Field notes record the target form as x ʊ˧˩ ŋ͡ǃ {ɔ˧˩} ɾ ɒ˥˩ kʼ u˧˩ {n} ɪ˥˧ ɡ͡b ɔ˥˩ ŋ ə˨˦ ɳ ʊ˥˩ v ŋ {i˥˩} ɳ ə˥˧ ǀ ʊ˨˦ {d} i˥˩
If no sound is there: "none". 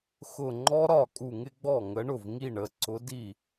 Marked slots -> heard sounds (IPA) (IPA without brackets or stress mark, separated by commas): ɔ˦˥, ŋ, i˥˩, d